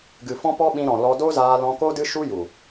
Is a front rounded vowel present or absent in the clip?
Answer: absent